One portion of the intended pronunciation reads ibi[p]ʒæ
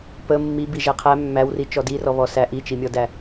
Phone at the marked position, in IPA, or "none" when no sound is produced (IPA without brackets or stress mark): none